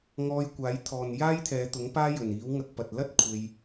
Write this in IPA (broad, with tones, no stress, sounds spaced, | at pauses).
ŋ ɔː˧ j kʷ aː˨˥ j t̪ʰ ɔː˨ n j aː˥ j t̪ʰ ɛː˨˧ t̪ ʊ˨˥ ŋ p aː˥ j ɵ˨˩ n iː˨˥ w ŋ ɐ˧ k̚ p ɐ˨ t̚ l ɐ˥ t̚ kʷʰ e˧ j